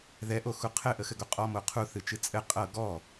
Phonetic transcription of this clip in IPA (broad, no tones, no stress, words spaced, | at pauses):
ðɛʔoxu qʰɘʔəxɘɡo qʼɔmo qʰuθɨt͡ʃɨ t͡sʼɘ qʼɤ ɡɔ